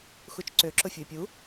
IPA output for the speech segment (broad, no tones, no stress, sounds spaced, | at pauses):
x u t͡ʃ ǀ ø ǁ ʊ fʲ ʊ ɪ̯ pʲ u